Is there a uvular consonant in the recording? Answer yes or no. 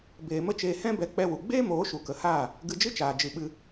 no